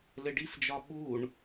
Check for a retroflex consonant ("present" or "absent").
present